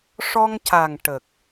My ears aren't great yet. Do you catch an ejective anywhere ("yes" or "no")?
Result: no